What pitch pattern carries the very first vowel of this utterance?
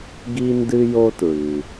high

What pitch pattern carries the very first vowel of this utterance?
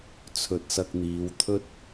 low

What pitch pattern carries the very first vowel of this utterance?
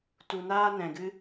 low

